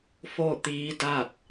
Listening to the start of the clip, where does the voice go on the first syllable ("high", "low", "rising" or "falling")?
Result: falling